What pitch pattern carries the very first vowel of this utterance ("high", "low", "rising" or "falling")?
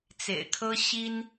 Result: low